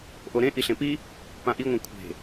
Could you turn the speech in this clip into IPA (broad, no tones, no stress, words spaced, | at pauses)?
ʔoɾẽ ʔiɬẽpi | pãʔiŋʷã kʷʰe̤